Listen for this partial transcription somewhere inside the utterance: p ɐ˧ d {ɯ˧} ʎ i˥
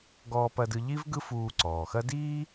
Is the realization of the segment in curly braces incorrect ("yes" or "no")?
no